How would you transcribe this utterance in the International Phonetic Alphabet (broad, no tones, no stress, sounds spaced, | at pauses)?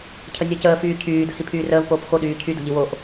cʰ ə nʲ əː c əː f yː cʰ yː d ə̤ h i pʰ yː r əː v p oː p x o ɗ yː cʰ y d o̤ ʎ i w o ʔ